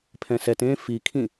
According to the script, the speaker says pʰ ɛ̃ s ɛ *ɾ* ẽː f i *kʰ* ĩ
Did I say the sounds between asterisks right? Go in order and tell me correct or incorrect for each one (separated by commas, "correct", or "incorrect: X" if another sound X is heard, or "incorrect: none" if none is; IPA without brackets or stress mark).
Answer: incorrect: t, correct